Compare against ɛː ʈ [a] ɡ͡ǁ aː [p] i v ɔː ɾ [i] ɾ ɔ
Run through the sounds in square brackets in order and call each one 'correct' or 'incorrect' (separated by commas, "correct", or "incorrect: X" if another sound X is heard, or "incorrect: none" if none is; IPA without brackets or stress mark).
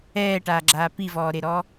incorrect: aː, correct, incorrect: e